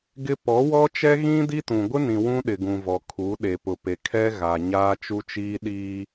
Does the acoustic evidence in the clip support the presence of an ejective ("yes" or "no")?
no